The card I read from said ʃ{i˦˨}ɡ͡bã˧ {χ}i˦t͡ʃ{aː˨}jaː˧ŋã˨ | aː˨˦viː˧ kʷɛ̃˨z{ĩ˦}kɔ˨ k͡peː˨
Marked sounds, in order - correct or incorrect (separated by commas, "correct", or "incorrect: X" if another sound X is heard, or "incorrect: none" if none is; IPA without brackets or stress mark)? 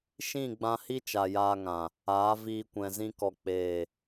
incorrect: ĩ˦˨, incorrect: h, incorrect: a˨, incorrect: ĩ˧